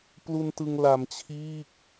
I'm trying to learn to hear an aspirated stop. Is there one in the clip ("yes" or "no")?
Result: yes